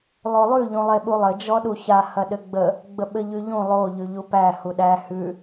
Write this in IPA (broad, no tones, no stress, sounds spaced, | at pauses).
lˠ o lˠ ʉ ʎ ũ lˠ e ɓ u lˠ ɘ d͡ʒ ɔ ɗ u ç a h ɐ ɗ ɘ ɡ͡b ə | ɡ͡b ə ɓ ɘ ʎ ʉ ʎ ũ lˠ o ʎ ʉ ʎ u p æ h u ɗ æ h ʉ